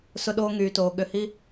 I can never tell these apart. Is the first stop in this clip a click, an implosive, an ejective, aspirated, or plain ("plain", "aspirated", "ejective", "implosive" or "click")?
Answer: implosive